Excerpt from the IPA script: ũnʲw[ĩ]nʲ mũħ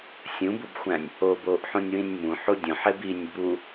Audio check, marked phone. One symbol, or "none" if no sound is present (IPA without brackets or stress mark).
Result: ĩ